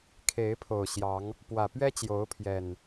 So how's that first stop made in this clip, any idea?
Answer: aspirated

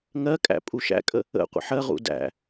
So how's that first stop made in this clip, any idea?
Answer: ejective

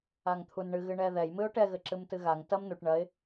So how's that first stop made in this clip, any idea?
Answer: aspirated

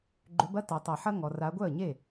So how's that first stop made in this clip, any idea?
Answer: click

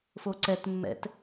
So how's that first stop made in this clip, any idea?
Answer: click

